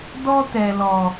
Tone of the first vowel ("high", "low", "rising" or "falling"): high